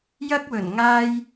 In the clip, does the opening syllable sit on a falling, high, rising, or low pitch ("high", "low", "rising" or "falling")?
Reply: high